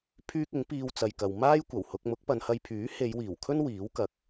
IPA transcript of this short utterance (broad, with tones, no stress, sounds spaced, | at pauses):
pʰ yː˥ k̚ ɪ˨˥ ŋ p iː˥ w t͡s ɐ˧ j k ɐ˧ w m aː˥ j kʷ ɐ˨˩ w h ʊ˧ k̚ m ʊ˨˥ k̚ p ɐ˨˧ n h ɐ˧ j pʰ yː˨˥ h e˨˧ j w iː˨˩ w kʰ ɵ˥ n w iː˨˥ w k ɐ˨˥ k̚